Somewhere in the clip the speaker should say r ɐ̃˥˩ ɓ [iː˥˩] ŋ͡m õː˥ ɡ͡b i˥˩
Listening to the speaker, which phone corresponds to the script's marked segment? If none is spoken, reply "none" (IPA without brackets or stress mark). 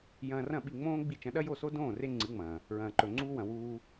i˥˩